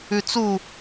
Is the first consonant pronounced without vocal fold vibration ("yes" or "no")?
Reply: yes